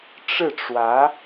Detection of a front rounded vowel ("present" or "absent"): absent